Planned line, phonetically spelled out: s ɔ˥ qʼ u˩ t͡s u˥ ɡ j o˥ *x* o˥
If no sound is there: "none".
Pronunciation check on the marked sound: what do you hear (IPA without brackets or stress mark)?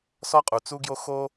x